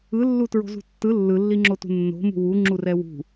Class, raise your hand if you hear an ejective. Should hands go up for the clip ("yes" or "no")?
no